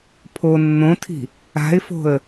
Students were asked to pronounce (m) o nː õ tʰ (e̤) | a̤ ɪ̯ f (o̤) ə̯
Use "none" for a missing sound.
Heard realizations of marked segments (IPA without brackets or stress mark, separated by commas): pʰ, i̤, o̤